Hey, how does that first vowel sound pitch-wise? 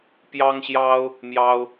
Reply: high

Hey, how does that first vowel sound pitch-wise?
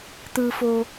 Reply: low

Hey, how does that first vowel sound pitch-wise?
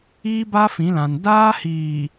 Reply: high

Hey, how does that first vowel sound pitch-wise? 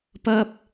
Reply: high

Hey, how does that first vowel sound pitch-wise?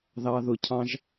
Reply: low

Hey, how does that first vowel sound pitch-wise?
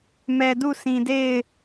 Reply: low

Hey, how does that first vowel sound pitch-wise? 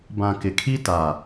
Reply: low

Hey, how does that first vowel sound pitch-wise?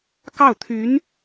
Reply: falling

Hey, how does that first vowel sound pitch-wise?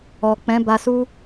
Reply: low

